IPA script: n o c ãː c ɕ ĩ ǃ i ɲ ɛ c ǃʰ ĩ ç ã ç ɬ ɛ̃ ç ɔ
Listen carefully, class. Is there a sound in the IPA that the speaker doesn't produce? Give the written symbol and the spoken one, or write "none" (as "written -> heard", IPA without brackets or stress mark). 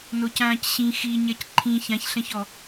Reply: ǃ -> x